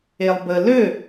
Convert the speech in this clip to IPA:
e lˠ b ə l ø

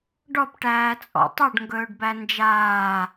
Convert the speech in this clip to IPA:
ɖ ɔ p ʈ æː t͡sʼ ɔ̰ tˤ ɵ ɖ ŋ ɡ ɵː ɖ b æ n d͡ʒ aː

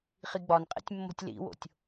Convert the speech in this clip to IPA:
χ i ɡ͡b ɒ n qʼ ḛ tʲ mː o̤ tʲ l ḭ w o̰ tʲ

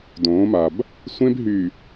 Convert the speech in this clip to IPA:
d õː˨˦ m a˨ b | sʷ ẽ˦ b ɦ y˨

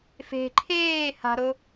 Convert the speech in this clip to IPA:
f e̤ ǃʰ eː h a̤ ɾ o

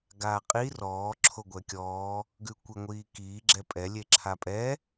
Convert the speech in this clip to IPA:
ɡ aː qʼ i r ɔː ǁʰ o ɡʷ ɛ kʲ ɔː | ɡ ʉ kʷ i ŋʷ iː k iː ɡ͡ǁ ɛ pʼ ɛ lʲ e ǁʰ a pʼ ɛ

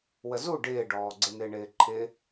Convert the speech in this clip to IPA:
w ə z u ɖ ɪː ɖ ɔː ɡ͡ǀ ɪ n ɪː ɳ ɪː ǃʰ ɪː

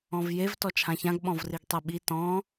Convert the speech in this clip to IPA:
ɔ̃ v j e v t ɔ t͡ʃʰ ã ç ã ɡ ɓ ɔ̃ v r i ɡ tˤ e ɓ i t ɔ̃

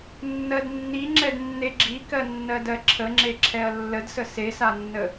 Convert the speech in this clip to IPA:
nː ɜ d nː i ŋ͡ǁ ɛ d nː e ɡ͡ǁ i k ɜ nː ɜ d ɜ ǁʰ ə ŋ͡ǁ e ǁʰ ɛ ɐ̯ lː ə d s ə s e s a nː ə

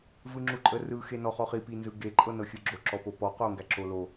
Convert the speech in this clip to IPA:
v ɯ ŋ͡ǁ u ǃʼ ə r ɯ x e n ɔ χ ɔ χ i p i n z ɯ ɡ e ǃʼ ɤ n ɤ xʲ ɯ ɡ͡ǁ o ǁ ɔ p o p ɔ q o ŋ ɡ æ ǁ o l o

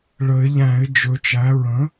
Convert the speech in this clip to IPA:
ɭ ə˨˩˦ ɪ̯ ʎ æ̃˨˩˦ ɪ̯ d͡ʒ ɵ˩˥ t͡ʃ æ˩˥ ɹ ə̃˩˥

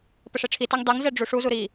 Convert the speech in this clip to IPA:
p ə ʂ e ʈ͡ʂʰ i t ɛ ŋ dˤ i ŋ z ɛ ɖ͡ʐ u ʂ u z u ɾ i

